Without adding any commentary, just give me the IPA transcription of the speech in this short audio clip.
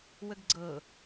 wəɡɡ͡ǀɤ

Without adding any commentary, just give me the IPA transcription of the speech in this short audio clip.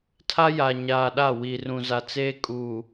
tʰa˦ja˨ɲaː˨ɗa˦˨ wi˨rũ˨za˨t͡seː˦ kʼu˨

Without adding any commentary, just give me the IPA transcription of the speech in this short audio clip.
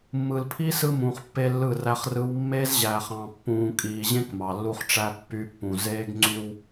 mːɯ˨lpʰi˦ sɯ˦mũː˨χ pːe˦lːɯ˦˨ræ˦χ rɯ˦w mːe˦zʑæː˨χ ɑ̃˨ pːũː˨kʼiː˨ʑẽ˦k mɑ˨lːu˦χʈ͡ʂæ˦ pːy˨˦pːũ˨ zeː˦ɡŋ͡ǀy˦w

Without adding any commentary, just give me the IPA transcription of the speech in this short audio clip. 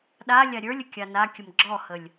ɗalʲa ɾʲə˞lʲə kʲanakʲəm ɡ͡ǁɔhəlʲ

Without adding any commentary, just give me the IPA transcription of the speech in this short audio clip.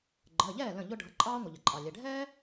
ɡ͡ǃəː˩˧˩ʎɛː˥˩ lə̃˥˩ʎʊ˥ ɖʱʌ˩˧˩ǃʼɑː˥ŋʷə˩ ʎə˩ǃʼɑ˩lʲɛ˩˧˩ ɖʱɛː˥

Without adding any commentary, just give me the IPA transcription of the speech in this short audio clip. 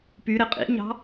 py ɾeqʼḭɲɑ̤

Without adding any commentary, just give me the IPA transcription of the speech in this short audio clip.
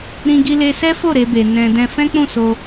ɾĩ˧ ɡi˧le˧sɛ˦fo˦˨ ɾe˧be˨ nɛ̃˧dɛ̃˦ fɛ̃˦k͡pũ˦˨so˧

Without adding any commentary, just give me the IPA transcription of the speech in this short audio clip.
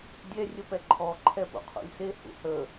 dʲɛ rʲəpɛǃʰɔ ǃʰɛpṵqʰṵlʲse hṵhə

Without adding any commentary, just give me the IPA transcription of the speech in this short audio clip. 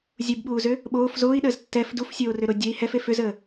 zʲubɓuːzʏ | ɓoːf zoːi̯ɗəːz tːɛf dufsʲoːrʏɾo dʲəi̯ hɛfe fʏzəː

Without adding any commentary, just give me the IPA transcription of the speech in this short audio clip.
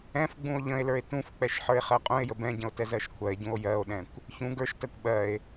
ɛ̃fɡ͡bũo̯ ʎə̃e̯lə˞e̯ tũfk͡pɛʃ ħə˞e̯χɜqʼũe̯jə bɛ̃ɟə̃o̯ tɛzɜʃkʷʰɜe̯ɟũo̯ jɜo̯ɗɛ̃kʷ | çũ ɡə˞ʃtɜkʷ ɓɜe̯

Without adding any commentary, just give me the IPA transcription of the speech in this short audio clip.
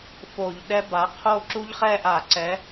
fo˧˩˧ʎ ɗɛ˦˥ba˨˥ qʰo˥˧ ǁu˦˥ʎχɛ˥˧ʔa˧˩˧ ǀɛ˨˥

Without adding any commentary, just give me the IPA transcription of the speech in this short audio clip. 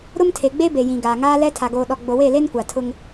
ɾʊ˦mtʰe˨ɡ͡be˦ be˨jĩ˨ ɡaː˨ŋaː˦lɛ˦ tʰa˨ɡoː˨ɗɔ˨ ɡ͡bo˨we˦˨le˦n kʷa˨tʰʊ˦ŋ

